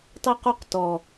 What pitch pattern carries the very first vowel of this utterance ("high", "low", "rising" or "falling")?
high